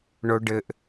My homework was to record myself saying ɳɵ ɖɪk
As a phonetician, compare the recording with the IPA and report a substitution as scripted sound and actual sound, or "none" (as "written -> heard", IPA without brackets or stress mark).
k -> ʔ